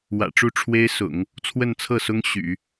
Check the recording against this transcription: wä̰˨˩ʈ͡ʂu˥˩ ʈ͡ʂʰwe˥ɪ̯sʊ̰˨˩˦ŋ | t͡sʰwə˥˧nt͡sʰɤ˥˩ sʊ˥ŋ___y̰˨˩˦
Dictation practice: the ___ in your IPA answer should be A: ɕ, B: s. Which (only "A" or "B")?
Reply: A